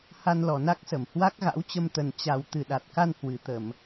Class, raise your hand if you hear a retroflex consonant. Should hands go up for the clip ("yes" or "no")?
no